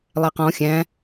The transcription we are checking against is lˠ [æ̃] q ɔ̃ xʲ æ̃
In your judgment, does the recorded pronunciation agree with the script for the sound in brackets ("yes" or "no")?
no